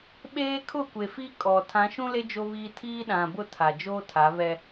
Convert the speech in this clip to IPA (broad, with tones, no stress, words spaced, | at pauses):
ɓeː˦kʰʊ˦˨kʷe˨fi˦ kʼɔ˨ tʰã˨˦ʃũ˦le˦ d͡ʒo˦βiː˦ tʰiː˦ɗã˨bʊ˦ tʰa˨d͡ʒoː˦tʰa˨˦βɛ˦